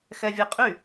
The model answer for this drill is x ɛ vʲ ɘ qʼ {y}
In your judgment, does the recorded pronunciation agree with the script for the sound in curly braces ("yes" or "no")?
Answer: yes